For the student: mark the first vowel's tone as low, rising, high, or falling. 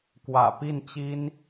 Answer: low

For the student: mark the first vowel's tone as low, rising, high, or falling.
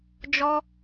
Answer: high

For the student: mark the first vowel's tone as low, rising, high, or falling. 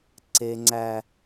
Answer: high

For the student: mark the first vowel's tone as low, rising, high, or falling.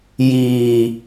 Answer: low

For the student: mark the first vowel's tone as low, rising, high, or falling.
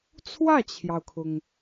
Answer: falling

